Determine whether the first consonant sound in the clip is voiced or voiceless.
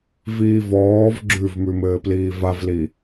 voiced